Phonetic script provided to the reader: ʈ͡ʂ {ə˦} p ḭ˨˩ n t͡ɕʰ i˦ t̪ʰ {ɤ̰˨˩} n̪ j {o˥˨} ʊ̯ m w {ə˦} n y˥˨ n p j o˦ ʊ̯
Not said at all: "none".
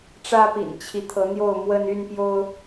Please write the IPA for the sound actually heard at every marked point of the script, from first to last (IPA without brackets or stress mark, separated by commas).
ä˦, ɤ˨˦, o˥˨, ə˦